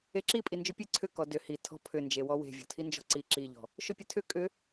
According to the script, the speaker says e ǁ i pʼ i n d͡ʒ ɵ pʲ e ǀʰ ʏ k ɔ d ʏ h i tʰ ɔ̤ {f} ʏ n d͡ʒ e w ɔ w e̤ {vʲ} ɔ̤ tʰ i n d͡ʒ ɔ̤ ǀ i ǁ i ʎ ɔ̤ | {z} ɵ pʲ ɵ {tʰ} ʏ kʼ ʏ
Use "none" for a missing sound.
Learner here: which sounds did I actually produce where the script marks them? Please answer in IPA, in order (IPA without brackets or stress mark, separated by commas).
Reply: pʰ, vʲ, ʃ, tʰ